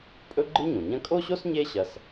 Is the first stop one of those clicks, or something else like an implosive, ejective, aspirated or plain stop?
ejective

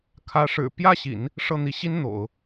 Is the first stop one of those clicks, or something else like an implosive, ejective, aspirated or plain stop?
aspirated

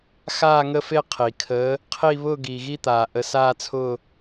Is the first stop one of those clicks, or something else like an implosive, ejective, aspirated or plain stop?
aspirated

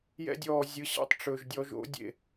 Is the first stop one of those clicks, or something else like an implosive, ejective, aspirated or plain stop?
plain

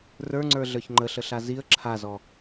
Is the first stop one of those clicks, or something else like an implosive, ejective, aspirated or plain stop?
click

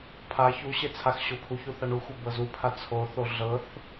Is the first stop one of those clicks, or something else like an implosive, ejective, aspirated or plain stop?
aspirated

